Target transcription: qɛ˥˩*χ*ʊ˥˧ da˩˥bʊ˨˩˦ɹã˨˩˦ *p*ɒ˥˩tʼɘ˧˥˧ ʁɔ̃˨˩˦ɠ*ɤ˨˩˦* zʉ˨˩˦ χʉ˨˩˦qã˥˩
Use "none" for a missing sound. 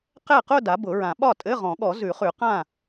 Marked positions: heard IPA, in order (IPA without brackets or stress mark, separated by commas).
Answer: q, ɓ, ɔ˨˩˦